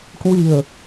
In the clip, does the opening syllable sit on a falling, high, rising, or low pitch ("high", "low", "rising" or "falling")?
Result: low